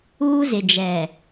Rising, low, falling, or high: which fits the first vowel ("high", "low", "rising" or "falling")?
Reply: high